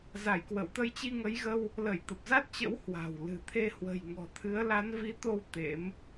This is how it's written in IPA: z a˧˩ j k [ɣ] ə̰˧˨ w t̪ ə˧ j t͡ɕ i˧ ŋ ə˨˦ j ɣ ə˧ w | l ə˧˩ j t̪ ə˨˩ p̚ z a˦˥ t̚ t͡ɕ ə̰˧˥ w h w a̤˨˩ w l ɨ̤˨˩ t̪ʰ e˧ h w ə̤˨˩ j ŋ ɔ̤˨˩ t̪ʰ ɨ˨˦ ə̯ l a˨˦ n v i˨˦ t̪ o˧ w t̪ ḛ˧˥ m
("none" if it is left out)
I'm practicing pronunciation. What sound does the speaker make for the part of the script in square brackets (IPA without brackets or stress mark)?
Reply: w